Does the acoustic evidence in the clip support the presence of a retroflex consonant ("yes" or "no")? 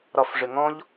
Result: yes